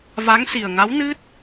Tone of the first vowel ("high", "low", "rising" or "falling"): rising